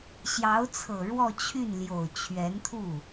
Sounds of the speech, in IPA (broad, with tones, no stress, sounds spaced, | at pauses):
ɕ j ɑ˧˥ ʊ̯ t͡sʰ ɤ˨˩ ɻ w ɔ˥˧ t͡ɕʰ y˥˩ n l j o˨˩ ʊ̯ t͡ɕʰ ɥ ɛ˧˥ n t̪ʰ u˥˩